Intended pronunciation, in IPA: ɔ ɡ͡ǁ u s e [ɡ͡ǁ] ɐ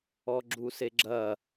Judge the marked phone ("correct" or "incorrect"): correct